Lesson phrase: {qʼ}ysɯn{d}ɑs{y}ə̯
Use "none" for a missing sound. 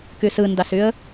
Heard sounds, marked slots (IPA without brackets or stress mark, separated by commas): k, d, y